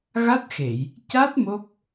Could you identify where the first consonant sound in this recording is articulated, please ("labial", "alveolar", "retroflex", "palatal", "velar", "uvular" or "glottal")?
velar